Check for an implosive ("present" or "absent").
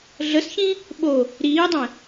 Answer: present